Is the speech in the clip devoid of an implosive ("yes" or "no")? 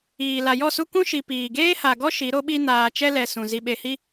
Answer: no